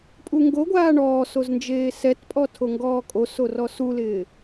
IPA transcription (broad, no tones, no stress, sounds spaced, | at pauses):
pʼ u ŋ ɡ o ɡʷ aː ɳ ɔː s o z n d͡ʒ eː s ɛ t pʼ ɔ tʰ o ŋ ɡ ɔː kʼ o s o r ɔ s u l ɪː